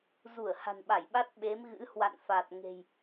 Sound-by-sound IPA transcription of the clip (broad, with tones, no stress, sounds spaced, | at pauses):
z u˧˩ ə̯ h a̤˨˩ n ɓ a˧˩ j ɓ a˦˥ t̚ ɓ e˨˦ m ɣ ɨ̰˧˥ h w a̰˧˨ n f a˨˩ t̚ ŋ e̤˨˩ j